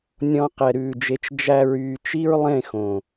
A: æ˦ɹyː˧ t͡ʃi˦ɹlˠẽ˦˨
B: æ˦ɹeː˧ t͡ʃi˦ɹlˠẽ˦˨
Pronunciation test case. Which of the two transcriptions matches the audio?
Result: A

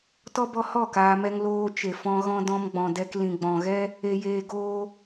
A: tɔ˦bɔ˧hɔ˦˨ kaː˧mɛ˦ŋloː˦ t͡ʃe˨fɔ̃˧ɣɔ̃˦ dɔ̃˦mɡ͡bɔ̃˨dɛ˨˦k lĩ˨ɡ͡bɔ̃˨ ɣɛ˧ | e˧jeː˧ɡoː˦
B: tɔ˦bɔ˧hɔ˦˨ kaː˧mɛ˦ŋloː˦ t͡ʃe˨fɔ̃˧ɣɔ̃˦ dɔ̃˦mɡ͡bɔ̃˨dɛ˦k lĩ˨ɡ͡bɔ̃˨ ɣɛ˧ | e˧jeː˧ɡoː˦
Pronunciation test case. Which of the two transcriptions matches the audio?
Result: B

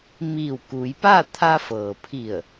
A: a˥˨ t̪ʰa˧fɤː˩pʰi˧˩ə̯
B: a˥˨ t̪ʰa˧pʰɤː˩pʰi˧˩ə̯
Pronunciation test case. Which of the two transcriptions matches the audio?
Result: A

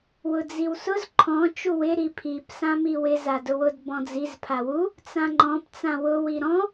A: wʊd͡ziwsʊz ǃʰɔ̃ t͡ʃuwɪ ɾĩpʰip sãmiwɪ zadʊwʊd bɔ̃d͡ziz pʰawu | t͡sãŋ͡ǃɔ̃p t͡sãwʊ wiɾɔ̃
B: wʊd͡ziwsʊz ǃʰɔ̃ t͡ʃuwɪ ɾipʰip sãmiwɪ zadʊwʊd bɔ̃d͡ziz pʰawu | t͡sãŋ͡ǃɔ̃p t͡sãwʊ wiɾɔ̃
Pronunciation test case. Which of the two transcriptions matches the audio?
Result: B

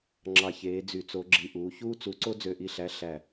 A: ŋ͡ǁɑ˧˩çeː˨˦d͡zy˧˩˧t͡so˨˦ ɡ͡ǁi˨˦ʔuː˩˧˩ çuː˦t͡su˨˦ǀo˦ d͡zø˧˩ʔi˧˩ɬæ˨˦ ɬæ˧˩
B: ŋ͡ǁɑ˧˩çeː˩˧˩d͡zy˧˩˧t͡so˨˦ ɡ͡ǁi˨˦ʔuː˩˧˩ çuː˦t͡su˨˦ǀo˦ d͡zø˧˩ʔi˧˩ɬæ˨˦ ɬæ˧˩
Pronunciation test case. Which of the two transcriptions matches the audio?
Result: A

